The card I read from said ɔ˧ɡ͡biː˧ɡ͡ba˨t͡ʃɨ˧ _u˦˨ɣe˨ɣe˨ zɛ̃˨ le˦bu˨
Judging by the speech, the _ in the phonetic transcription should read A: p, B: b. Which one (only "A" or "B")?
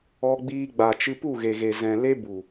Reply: A